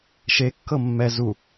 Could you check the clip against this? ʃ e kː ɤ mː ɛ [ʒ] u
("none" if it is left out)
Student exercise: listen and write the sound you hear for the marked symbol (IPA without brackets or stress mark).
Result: z